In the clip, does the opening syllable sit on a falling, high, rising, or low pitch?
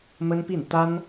high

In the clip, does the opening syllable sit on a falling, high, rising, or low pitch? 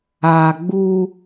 low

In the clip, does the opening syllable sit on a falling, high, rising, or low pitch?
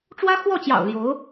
high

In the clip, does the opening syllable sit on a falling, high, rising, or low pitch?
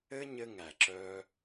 high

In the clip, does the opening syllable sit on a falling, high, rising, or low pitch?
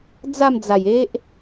falling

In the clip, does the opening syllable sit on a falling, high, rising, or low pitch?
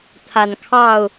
low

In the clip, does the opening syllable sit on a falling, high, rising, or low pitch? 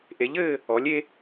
rising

